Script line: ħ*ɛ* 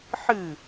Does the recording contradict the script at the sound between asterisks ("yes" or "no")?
yes